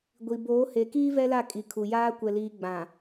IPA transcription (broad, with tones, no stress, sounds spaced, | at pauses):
ɡʷ i˨ b oː˨˦ h e˨ k iː˦ v ɛ˦ l a˦˨ kʼ i˨ kʰ u˨ j aː˦ kʷ ɛ˨ l iː˨ ɡ͡b ã˨